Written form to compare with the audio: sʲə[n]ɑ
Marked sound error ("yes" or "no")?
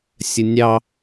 yes